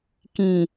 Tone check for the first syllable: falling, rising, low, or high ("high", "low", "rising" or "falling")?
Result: low